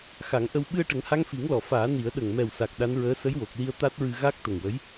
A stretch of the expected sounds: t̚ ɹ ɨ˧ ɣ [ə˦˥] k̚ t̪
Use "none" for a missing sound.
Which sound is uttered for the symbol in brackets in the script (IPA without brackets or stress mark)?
a˦˥